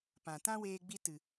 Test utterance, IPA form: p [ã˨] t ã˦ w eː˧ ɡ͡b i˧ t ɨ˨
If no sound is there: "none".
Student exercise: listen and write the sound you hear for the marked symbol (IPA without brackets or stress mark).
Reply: ã˨